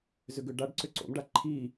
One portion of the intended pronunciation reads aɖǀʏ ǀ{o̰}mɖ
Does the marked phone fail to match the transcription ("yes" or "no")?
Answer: no